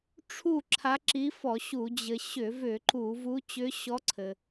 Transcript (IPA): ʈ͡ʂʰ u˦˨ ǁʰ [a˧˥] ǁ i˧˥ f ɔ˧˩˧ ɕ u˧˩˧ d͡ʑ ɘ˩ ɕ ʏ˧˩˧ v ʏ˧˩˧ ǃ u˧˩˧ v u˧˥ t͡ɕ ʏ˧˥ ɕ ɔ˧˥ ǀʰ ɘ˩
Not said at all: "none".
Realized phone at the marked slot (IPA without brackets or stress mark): a˧˥